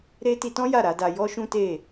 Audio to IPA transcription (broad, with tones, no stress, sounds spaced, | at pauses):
ɾ e˦ t i˧ t ɔ̃˦ j a˦˨ ɾ a˨˦ d a˧ j ɔ˦ ʃ ũ˦ t e˦˨